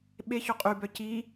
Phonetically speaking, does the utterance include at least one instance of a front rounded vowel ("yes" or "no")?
yes